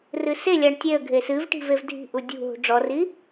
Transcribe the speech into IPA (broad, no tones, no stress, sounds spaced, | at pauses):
r ɨ s e lʲ a ɳ tʲ e ə̯ ɡʱ e s ɨ v ʈ i̤ v e v dʱ i̤ ʔ u dʲ ṳ ɦ ṳ ɖ͡ʐ ɔ r i